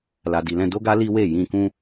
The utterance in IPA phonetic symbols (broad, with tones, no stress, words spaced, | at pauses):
la˨di˨lɛ̃˧ do˦ɡa˦ li˦we˦˨jĩ˧ kũ˦